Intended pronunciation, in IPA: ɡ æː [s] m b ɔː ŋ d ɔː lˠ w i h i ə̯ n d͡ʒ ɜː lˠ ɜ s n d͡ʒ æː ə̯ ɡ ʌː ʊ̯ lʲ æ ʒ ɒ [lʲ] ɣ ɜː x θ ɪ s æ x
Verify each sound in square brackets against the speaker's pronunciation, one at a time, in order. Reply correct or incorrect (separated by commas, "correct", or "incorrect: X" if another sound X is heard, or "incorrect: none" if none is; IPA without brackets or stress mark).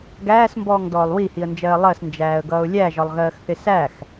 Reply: correct, incorrect: lˠ